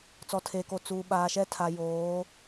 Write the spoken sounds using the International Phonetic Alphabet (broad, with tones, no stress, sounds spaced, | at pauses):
t͡s ɔ˨ tʰ eː˨ k o˨ t͡s uː˨ ɓ aː˨ ʃ ɛ˦ tʰ a˨ j oː˨˦